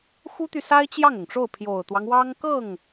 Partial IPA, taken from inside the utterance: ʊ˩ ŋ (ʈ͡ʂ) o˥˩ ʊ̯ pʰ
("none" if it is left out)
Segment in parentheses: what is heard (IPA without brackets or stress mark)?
ʈ͡ʂ